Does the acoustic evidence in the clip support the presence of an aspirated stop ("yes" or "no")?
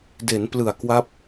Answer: no